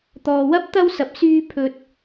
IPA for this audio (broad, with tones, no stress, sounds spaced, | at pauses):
t̪ ɔː˧ w ɐ˥ p̚ t̪ ɐ˥ w s ɐ˧ p̚ s yː˥ pʰ ɵ˥ t̚